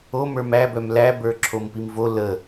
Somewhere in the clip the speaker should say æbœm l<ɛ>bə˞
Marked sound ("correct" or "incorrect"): incorrect